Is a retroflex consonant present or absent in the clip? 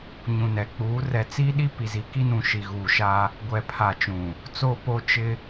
absent